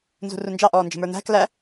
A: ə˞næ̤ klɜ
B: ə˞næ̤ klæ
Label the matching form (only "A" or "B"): B